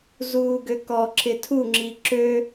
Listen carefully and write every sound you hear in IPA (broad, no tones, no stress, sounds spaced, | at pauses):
z uː ɡ ø k ɔ ǁ ɪ tʰ u ŋ͡ǁ i ǁ ø